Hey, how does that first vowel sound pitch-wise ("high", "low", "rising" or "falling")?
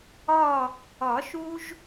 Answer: falling